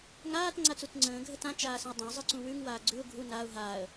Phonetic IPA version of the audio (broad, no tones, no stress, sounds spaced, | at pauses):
ŋ aː t ŋ͡ǀ a t͡s u t͡s ŋ͡ǀ ə̃ː ɡʱ ə t ã t͡ʃ aː s ə̃ ʊ̯ dˤ ə̃ ʊ̯ zˤ ɯ ǀ ũ w ʉ ŋ w aː ɡ͡ǀ ʉ ʊ̯ ɡʱ u n a ʊ̯ ɦ aː ə̯